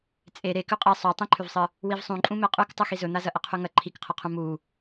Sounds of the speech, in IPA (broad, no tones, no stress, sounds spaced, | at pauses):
t͡sʼ e ɾ e k ʉ qʼ e sˤ o tˤ ĩ ǃʰ ʉ v sˤ ɨ | w i v sˤ ũ ǃʼ ũ m e qʼ ʉ k tˤ ɨ x i z ɵ n̪ a z ɐ ʔ ɐ qʰ ʉ ŋ ɐ ǃʰ i k qʰ ɐ qʰ ũ m u